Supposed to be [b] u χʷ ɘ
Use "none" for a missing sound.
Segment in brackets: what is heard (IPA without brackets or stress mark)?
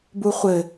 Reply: b